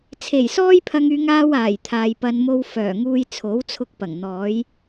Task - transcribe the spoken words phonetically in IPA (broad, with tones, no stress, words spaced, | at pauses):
t͡sʰe˨˩jsɔː˥jpʰɐ˧ŋyː˧ ŋaː˥waː˨˩jt̪ʰaː˨jpɐ˧n mo˧wfœː˨˩ŋuː˧j t͡sʰo˨˥wt͡sʰʊ˧k̚pɐ˨˩ŋ n̪ɔː˨˥j